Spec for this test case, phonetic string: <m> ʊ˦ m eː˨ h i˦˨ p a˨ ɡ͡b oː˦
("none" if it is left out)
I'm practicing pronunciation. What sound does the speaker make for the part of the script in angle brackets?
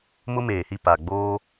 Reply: m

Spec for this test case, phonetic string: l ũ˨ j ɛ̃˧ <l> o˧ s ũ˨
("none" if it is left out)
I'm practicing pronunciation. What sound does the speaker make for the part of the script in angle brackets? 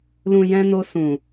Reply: n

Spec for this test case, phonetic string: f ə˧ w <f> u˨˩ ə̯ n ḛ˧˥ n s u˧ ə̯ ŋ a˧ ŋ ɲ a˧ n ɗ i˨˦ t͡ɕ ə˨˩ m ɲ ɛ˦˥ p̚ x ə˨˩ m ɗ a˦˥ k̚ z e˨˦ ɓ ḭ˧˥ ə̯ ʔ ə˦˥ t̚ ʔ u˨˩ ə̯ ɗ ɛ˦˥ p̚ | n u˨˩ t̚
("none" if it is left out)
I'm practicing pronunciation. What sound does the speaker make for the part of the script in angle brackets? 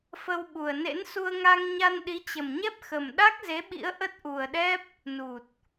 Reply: ɓ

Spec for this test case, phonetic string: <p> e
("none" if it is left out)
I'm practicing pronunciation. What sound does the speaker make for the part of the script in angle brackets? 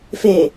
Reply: f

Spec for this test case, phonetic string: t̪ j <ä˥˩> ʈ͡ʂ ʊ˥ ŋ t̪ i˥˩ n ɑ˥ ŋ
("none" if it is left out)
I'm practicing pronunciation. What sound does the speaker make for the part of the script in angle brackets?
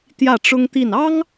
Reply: ä˥˩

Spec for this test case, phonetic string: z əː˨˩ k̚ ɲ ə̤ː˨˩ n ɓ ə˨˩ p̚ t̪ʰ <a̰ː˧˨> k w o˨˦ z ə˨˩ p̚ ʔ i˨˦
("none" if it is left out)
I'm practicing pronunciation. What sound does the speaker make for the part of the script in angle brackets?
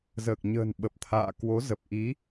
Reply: a̰ː˧˨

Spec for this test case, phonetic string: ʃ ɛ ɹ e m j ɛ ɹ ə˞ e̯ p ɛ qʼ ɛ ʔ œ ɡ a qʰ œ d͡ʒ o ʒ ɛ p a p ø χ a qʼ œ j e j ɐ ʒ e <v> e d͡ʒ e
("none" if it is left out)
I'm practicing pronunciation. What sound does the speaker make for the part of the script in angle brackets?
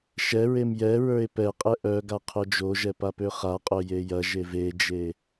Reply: v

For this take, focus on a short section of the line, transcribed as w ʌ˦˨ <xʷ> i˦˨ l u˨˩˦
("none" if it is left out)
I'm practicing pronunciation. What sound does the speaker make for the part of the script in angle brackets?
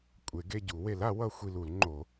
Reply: xʷ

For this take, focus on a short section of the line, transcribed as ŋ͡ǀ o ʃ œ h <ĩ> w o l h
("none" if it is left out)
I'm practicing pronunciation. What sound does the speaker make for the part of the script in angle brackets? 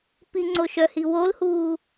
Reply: i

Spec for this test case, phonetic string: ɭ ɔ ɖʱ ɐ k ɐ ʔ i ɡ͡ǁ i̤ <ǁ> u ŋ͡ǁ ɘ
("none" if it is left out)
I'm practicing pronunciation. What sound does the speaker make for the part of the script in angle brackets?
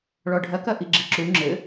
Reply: ǁ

